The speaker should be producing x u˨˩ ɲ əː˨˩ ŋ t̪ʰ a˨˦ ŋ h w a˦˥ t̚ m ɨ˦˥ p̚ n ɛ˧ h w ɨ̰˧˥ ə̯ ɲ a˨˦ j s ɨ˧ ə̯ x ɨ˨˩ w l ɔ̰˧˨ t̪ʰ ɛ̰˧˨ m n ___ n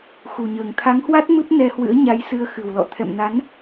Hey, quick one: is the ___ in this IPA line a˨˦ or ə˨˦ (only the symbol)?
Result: a˨˦